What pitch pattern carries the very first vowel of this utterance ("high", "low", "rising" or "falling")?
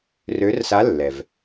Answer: rising